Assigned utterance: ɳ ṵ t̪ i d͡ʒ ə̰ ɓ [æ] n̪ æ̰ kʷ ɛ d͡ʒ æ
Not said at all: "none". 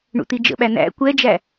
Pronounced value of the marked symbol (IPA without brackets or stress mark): æ